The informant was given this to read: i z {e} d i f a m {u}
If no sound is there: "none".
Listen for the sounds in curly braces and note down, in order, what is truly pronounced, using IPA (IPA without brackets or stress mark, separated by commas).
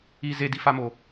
e, o